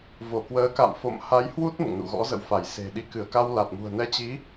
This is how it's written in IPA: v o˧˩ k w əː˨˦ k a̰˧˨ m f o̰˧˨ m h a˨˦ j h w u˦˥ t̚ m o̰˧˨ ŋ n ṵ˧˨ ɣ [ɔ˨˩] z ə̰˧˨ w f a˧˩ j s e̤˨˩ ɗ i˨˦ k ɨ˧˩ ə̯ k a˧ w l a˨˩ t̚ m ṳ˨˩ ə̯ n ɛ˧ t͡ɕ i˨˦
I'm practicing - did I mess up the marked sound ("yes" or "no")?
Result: yes